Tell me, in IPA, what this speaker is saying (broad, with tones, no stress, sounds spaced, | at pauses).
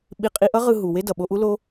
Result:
ɓ i˧ qʼ i˧ ʔ ʌ˦ ʁ ɯ˧ ɦ u˨ w e˦ d ʌ˨ ɓ o˧ ʔ u˦ l o˦